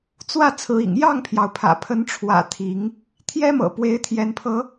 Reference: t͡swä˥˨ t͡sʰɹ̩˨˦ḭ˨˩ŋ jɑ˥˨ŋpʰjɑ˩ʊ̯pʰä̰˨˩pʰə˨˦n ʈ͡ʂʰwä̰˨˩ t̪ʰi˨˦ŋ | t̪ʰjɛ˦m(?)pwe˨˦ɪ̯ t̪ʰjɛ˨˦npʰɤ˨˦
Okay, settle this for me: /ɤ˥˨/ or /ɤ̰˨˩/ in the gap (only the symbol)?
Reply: ɤ̰˨˩